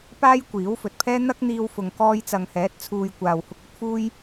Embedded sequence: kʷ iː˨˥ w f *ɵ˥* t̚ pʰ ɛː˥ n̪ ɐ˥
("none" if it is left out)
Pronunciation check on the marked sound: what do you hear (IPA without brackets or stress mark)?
ɵ˨